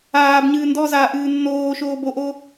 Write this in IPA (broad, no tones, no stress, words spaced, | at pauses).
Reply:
aːbɲɨː ndɔzaːʔɨː nːoːʃoː boʔo